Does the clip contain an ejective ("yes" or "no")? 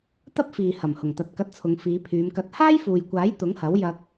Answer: no